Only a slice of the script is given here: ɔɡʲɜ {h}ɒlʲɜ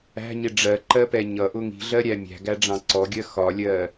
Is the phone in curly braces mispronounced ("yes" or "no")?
yes